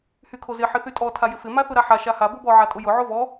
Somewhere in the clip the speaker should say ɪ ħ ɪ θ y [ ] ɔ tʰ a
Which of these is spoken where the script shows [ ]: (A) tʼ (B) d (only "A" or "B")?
A